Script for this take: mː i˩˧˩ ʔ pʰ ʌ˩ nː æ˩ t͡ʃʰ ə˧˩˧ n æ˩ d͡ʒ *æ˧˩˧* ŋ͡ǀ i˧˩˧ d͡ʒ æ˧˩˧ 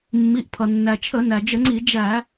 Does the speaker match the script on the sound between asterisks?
no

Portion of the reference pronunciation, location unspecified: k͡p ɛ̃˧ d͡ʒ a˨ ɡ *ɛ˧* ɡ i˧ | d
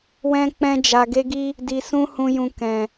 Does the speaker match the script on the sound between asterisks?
no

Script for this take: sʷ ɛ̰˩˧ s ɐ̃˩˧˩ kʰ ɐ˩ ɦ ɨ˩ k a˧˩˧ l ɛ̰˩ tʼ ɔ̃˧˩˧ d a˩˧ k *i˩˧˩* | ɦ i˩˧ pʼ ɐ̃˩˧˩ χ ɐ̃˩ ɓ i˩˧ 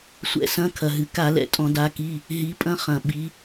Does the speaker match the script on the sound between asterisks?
yes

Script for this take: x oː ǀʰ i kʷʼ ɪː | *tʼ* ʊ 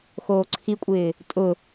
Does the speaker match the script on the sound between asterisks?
yes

